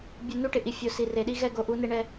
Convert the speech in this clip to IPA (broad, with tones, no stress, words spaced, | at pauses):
bʲu˨ nu˦ʈɪ˨ʔi˨ fʲo˨ si˨re˨ɗi˦ ɣɛ˦˨ɡo˨ʔu˨˦ ne˦ɳɛ˦